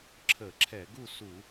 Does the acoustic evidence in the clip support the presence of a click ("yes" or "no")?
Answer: yes